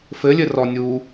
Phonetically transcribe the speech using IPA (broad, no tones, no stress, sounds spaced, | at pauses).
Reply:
f ɘ lʲ ɘ r ɔ nʲ uː